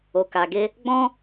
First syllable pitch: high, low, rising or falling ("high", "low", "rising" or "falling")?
low